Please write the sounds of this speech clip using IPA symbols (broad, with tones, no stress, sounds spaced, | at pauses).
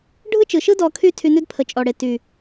ɖʱ ɯ˦ t͡ʃ ɯ˨ ʃ ɯ˦ d ɔ˧ kʰ y˦ tʰ y˧ n ʉ˦ d pʰ ə˨ t͡ʃʼ ɔ˨ ɽ e˨ t y˨